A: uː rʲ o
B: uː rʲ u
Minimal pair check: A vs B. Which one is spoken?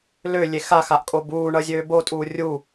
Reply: B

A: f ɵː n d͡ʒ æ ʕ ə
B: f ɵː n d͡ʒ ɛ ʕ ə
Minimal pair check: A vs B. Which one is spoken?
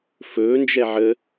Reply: B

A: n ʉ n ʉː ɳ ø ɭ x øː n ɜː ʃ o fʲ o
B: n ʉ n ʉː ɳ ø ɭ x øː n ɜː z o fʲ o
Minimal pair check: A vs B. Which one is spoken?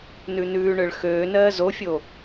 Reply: B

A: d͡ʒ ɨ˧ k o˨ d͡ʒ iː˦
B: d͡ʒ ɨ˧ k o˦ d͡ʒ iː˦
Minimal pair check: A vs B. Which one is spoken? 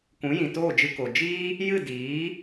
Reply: A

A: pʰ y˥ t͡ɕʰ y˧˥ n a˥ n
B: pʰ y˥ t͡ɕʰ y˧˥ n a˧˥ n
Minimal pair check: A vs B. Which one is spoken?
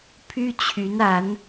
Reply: B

